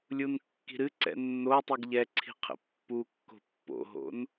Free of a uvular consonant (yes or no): no